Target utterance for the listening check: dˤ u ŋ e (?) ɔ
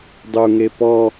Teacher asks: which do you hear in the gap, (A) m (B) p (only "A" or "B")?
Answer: B